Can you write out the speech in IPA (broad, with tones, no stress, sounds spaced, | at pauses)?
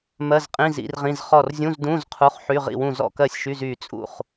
m ɜ˧˥˧ z qʼ ĩ˧˥˧ z ḭ˧˥˧ r ʁ ĩ˧˥˧ z χ ɔ˥˨ r zʲ ũ˧˥˧ z d ũ˧˥˧ z qʰ u˧˥˧ χ ħ y˧˥˧ ʁ ḭ˥˨ w ũ˥˨ z ɔ̰˥˨ k ɜ˥˨ sʲ ʃ y˧˥˧ z y˥˨ t͡sʼ ṵ˥˨ χ